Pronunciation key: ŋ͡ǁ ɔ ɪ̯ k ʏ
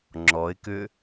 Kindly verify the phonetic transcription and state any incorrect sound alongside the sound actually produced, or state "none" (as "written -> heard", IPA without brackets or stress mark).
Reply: none